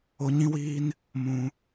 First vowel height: mid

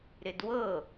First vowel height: high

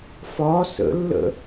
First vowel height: low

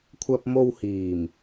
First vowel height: low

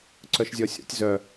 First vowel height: mid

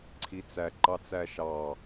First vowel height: high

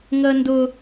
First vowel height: mid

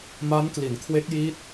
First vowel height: low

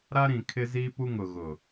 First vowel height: low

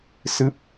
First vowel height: high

